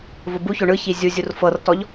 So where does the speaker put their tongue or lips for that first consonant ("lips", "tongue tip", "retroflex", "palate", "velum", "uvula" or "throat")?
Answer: lips